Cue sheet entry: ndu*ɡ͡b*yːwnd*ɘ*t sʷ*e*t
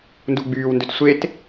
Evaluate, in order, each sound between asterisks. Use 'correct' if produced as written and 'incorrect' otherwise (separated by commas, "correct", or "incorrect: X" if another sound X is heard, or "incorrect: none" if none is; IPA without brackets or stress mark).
correct, incorrect: ø, correct